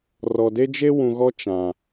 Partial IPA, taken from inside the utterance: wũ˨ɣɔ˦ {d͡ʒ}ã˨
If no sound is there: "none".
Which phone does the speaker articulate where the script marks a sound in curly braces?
t͡ʃ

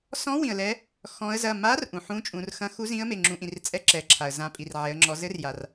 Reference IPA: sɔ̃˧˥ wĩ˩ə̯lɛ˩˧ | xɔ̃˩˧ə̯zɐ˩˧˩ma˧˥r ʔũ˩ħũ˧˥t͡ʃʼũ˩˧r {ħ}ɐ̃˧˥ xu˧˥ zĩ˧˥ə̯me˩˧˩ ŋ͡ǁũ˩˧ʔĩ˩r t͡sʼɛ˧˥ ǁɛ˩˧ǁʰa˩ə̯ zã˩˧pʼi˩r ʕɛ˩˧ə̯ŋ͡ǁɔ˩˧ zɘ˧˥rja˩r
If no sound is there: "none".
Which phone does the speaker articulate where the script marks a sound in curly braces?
x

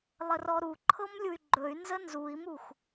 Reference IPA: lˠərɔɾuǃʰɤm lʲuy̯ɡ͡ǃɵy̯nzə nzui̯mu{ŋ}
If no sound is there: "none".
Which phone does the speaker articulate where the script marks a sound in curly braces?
x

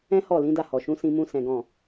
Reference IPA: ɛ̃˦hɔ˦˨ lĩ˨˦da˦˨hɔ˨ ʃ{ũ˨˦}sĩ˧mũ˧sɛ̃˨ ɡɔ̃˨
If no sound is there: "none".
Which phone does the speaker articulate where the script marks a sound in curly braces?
ũ˨˦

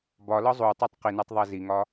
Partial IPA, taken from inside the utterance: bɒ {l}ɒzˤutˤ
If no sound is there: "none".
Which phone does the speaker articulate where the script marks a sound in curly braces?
l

